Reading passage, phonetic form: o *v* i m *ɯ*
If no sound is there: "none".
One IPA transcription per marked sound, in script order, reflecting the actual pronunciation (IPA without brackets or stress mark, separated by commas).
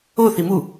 θ, u